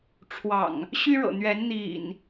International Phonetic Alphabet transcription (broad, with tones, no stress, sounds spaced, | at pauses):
ʈ͡ʂʰ w ɑ̰˨˩ ŋ | ɕ y˦ ɻ ɤ̰˨˩ n̪ ɥ ɛ˨˦ n n̪ ḭ˨˩ n